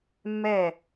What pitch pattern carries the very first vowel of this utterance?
falling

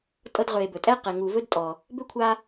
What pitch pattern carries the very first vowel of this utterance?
high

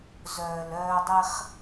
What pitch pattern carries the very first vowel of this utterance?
low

